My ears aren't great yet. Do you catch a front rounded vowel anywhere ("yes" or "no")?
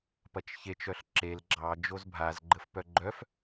yes